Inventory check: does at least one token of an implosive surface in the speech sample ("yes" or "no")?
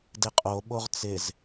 yes